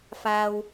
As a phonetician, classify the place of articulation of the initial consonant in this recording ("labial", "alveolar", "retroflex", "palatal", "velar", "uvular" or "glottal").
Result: labial